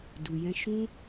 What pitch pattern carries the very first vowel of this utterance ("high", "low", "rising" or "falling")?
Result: low